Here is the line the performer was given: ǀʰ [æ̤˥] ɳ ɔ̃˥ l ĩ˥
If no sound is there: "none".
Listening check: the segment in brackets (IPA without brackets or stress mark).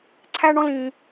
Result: æ˥